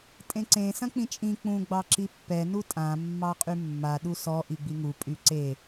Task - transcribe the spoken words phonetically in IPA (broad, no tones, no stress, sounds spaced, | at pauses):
tʼ ẽ ǀ ẽ s ɐ̃ k͡p ĩ t͡ʃʼ ĩ k͡p ũ ɡ͡b ɑ ǁ i pː ɛ n u tʼ ã mː ɑ qʼ y mː a ɗ u s ɔ ʔ i ɡ͡b i ŋ u pʼ y ǀ e